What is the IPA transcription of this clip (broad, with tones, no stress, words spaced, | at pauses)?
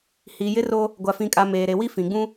hiː˨jɪ˦ro˦ | ɡʷa˨fĩ˨kʼa˨ meː˨ɾe˨wi˦ fĩ˨ɡ͡bũ˦